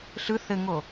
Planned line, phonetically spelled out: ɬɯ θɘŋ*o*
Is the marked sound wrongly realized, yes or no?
no